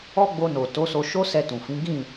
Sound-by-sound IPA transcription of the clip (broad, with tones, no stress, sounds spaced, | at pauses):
ɔ˦ ɡ͡b o˧ n o˨ t o˨˦ s o˧ ʃ o˦ s ɛ˧ t ũ˨ f ĩ˨˦ ɡ ĩ˦˨